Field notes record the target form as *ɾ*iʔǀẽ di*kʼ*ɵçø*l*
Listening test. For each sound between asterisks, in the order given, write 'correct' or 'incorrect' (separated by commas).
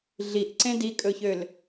incorrect, correct, correct